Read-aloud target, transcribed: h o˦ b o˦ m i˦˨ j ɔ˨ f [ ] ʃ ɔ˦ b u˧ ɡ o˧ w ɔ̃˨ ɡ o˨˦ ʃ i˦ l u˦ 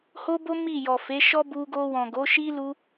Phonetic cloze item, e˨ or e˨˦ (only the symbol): e˨˦